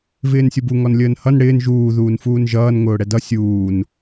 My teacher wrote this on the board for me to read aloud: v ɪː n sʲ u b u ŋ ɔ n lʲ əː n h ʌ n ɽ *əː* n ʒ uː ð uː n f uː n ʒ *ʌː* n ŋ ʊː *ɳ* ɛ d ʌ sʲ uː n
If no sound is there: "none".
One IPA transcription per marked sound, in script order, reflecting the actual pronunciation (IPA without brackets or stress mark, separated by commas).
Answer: ɪː, ʌː, ɽ